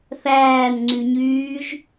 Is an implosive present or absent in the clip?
absent